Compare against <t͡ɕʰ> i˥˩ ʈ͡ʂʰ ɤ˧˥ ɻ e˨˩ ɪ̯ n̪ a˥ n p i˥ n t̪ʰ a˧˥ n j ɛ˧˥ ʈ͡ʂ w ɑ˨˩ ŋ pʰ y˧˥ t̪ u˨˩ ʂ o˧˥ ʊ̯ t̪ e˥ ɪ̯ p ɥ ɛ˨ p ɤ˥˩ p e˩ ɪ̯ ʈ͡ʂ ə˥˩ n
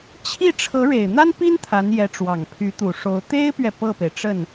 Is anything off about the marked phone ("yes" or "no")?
no